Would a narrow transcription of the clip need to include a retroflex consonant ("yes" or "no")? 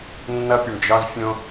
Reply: yes